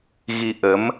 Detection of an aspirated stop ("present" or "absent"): absent